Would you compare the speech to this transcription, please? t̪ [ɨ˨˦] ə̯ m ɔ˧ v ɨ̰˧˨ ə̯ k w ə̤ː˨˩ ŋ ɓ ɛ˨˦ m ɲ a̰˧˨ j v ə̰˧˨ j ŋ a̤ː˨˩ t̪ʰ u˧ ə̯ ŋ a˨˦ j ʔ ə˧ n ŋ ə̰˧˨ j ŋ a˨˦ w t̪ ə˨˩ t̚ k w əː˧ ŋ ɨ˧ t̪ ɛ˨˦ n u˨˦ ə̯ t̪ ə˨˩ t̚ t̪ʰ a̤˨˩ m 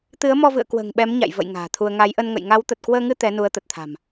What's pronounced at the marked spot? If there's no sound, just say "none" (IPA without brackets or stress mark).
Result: ɨ˨˦